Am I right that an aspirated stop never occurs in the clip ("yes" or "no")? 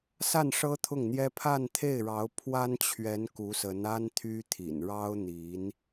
no